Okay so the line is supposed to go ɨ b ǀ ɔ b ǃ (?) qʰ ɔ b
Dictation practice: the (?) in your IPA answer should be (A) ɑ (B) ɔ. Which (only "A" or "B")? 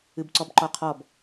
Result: B